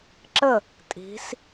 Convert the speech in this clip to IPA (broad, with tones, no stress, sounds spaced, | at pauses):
ǁ ə˥˨ | tʼ i̤˧˥ s